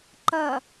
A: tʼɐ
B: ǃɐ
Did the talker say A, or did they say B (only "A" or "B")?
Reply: B